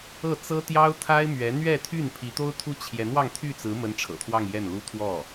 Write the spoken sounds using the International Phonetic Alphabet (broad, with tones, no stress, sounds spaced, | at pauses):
ɤ˥˩ t͡s ɤ˥ t̪ j ɑ˥ ʊ̯ t̪ʰ a˥ ɪ̯ m ɥ ɛ˧˥ n̪ ɥ ɛ˥˧ t̪ʰ y˥˩ n pʰ i˧˥ t̪ o˥ ʊ̯ t̪ʰ u˥ t͡ɕʰ j ɛ˧˥ n w ɑ˥˧ ŋ t̪ʰ y˥˩ t͡s ɹ̩˧˥ m ə˧˥ n ʈ͡ʂʰ ɤ̰˨˩ t̪ʰ w ɑ˥˧ ŋ j ɛ˥˩ n l u˥ t̪ʰ w ɔ˥˩